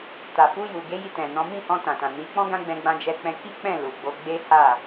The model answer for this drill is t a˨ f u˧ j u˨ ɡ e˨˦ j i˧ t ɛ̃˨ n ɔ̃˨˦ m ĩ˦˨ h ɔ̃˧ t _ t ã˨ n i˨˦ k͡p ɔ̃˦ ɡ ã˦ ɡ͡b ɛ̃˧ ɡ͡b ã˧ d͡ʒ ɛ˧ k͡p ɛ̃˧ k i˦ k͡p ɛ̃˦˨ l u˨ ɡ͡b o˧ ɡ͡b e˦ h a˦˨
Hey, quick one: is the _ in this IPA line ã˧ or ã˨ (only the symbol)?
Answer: ã˨